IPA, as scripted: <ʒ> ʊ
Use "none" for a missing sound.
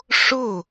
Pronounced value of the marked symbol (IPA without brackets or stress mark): ʂ